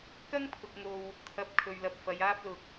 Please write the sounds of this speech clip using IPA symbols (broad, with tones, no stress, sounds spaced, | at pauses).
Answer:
k ɐ˥ ŋ pʰ ʊ˨ k̚ ŋ o˨ w | t̪ʰ ɐ˨ p̚ kʰ ɵ˨ ɥ l ɐ˨ p̚ f ɐ˨˧ j aː˥ p̚ l ʊ˧ k̚